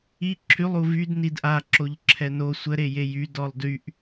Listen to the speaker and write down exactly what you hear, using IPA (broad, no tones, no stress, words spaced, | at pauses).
i ǁʰylˠu vyd nidʔaǁoʎ ǁʰɛno sʷə ɾejejy dɔlˠdyʔ